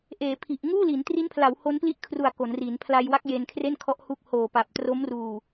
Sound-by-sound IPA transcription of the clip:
ʔ eː˩˦ pʰ i˨˩ ʔ ŋ uː˥˩ l i˩˦ n t r i˦˥ n pʰ l a˩˦ w h o˦˥ n p l i˥˩ ʔ kʰ r u˨˩ a̯ k o˩˦ n r i˩˦ n pʰ l a˧ j w a˦˥ k̚ j e˧ n kʰ r e˥˩ n kʰ ɔ˦˥ ʔ h u˦˥ k̚ h oː˨˩ p a˨˩ p̚ t r o˦˥ m r uː˨˩

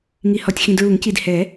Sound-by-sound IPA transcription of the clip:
ŋ i˨ h ɔ˨ tʲ x ĩ˨ d ɹ u˨˩˦ ŋ c i˨ d h ɛ˨˩˦

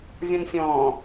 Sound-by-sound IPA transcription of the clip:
vʲ ɔ̃ n fʲ ɔ̃ː

